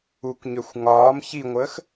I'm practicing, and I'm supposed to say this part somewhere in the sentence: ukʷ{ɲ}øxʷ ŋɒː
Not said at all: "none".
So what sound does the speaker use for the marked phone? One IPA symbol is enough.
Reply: ɲ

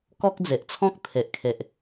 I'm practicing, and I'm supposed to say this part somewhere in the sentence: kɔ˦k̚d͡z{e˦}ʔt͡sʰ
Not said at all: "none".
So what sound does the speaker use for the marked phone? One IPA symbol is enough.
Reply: e˨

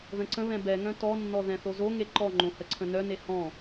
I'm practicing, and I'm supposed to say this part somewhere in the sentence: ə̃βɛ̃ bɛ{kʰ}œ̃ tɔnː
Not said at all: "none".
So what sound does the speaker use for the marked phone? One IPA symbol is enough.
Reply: ŋ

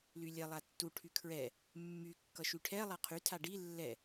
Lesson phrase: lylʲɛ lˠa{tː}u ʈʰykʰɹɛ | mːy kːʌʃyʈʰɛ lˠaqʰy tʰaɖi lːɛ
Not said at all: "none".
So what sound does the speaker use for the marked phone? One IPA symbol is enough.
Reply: tː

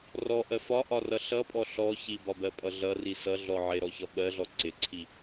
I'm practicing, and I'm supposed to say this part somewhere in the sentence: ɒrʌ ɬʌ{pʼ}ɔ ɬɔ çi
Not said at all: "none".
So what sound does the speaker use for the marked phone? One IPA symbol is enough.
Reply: pʼ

